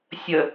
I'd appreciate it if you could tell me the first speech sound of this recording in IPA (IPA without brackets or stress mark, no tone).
sʲ